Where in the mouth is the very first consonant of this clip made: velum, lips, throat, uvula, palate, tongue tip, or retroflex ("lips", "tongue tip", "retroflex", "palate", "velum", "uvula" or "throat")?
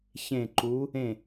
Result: palate